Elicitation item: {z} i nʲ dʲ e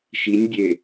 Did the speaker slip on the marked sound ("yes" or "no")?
yes